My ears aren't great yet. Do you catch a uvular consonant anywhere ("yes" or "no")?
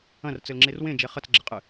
yes